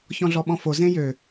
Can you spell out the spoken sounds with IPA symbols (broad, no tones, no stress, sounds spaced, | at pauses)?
ç ɔ̃ ɮ ɔ ɓ ɔ̃ f o z ẽ j ø